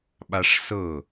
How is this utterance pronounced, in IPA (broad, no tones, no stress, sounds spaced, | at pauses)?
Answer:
ɓ a ʂ s ɤ